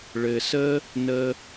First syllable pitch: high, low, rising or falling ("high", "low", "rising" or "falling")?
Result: low